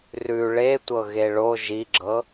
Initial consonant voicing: voiced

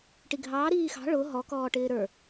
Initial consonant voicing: voiceless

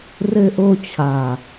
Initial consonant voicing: voiced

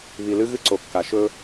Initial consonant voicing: voiced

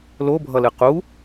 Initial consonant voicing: voiced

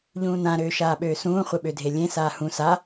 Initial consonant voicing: voiced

